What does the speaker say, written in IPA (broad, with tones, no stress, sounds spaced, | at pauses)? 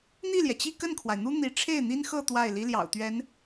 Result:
n̪ i˥˩ l j ɛ˩ t͡ɕ i˥˧ k ə˥˩ n kʰ w a˩ ɪ̯ n̪ u˥ n̪ i˧˥ ʈ͡ʂʰ e˥˩ ɪ̯ n̪ i˥ n x ɤ˥˧ t̪ w a˥˩ ɪ̯ l i˥ l j ɑ̰˨˩ ʊ̯ t̪ ɥ ɛ˧˥ n